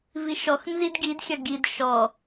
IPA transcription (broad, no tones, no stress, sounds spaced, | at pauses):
v i ʃ ɔ x n z i d ɡ i d xʲ ɐ ɡ i d ʃ ɔ